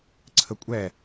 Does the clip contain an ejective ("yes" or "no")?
yes